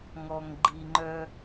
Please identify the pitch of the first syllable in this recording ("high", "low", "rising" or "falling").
low